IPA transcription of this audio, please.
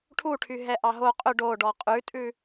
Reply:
ʈʰ u ʈʰ y ɦ ɛ ʔ ɑ ɦ o qʼ ø ɖ o ɖ ɔ qʼ ʉ tʼ ʉ

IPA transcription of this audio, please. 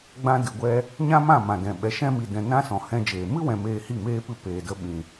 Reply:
ɡ͡b ã˧ d ɨ˨ ɡʷ ɛ˧ | ɲ ã˦ m ã˦˨ m ã˨ d ɛ̃˨ ɓ ɛ˨ ʃ ɛ̃˧ m i˨ d ɛ̃˨ n ã˦ s ɔ̃˨ h ɛ̃˧ d͡ʒ eː˨ m ɨ˦ w ɛ̃˨ m eː˧ h i˦˨ m eː˦ p ɨ˦˨ p eː˨ d ə˧ ɓ ĩ˨

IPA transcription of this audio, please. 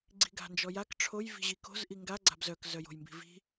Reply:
ɡ͡ǀ i̤ ɡ a̤ n d͡ʒ ɔ j a k ʈ͡ʂʰ o j v i̤ ʑ i k o̤ z ʔ i ŋ ɡ a ɡ͡ǀ a̤ b z œ k z œ j o̤ j m b i̤ v i̤

